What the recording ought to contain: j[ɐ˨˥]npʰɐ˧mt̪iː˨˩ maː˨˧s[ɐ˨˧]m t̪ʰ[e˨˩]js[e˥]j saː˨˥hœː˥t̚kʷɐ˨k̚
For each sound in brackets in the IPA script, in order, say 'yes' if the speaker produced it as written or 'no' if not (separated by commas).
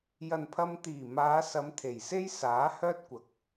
no, yes, yes, yes